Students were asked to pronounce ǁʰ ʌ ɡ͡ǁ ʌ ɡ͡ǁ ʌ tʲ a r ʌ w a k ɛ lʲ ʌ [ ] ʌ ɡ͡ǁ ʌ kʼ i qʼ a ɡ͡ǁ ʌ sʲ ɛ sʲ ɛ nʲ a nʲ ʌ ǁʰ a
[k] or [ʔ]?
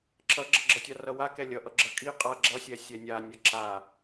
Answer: ʔ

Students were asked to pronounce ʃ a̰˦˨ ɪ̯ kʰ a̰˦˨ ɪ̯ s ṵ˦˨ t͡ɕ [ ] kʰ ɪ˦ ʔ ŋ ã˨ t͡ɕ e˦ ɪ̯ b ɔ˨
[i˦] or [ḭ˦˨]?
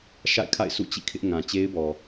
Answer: ḭ˦˨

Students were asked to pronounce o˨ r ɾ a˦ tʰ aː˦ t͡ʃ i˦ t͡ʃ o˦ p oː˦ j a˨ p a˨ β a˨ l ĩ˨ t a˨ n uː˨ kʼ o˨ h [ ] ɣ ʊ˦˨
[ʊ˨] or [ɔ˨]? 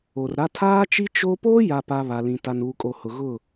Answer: ʊ˨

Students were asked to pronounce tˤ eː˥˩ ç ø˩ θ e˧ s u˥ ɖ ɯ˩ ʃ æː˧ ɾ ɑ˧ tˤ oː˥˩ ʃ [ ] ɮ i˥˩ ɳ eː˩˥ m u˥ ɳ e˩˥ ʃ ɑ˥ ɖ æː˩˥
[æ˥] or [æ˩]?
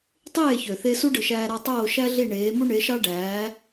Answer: æ˥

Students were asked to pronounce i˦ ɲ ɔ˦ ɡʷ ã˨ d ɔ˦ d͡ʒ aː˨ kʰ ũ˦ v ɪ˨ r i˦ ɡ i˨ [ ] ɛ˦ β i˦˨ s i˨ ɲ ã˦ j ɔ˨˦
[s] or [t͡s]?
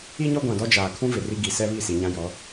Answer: s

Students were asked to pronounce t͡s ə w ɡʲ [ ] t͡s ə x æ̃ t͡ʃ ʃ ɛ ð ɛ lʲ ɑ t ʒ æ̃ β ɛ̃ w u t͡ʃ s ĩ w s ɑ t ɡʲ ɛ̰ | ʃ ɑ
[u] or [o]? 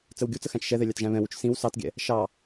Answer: u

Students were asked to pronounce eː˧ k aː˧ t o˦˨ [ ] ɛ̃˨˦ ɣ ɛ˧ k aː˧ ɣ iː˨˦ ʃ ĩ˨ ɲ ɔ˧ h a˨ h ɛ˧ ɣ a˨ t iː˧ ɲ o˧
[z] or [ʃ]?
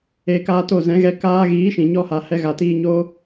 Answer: z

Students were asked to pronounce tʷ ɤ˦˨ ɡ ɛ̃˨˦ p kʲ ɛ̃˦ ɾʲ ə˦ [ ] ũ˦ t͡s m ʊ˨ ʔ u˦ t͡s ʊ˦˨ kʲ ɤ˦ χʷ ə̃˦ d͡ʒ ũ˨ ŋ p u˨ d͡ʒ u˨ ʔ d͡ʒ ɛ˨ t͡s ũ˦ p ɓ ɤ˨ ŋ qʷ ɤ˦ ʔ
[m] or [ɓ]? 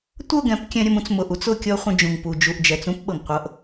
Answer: m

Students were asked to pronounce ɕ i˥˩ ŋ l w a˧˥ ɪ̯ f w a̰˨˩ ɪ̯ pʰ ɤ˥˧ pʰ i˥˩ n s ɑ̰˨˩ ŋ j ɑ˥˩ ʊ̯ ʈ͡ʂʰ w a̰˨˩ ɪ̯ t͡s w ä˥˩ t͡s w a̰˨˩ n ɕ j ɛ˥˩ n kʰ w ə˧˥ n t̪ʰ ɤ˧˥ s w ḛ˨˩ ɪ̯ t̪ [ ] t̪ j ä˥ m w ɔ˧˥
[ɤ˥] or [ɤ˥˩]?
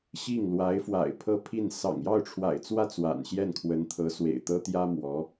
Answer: ɤ˥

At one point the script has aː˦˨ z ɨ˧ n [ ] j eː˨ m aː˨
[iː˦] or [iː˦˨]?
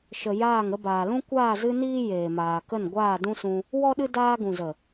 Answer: iː˦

